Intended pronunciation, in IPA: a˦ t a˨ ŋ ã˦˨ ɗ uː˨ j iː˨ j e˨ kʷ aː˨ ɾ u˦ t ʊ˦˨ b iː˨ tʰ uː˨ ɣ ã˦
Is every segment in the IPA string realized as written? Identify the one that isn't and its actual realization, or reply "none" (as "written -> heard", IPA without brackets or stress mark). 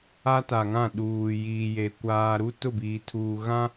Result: none